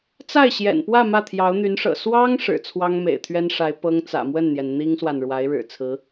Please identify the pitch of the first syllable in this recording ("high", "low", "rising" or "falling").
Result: falling